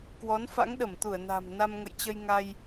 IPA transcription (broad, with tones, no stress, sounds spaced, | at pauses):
k w ɔ˨˦ n f a̰˧˥ ŋ ɗ ə˧˩ m t̪ u˧˩ ə̯ n a̤˨˩ m n a˧ m ŋ ə̰˧˨ j t͡ɕ ə˧ j ŋ a˧ j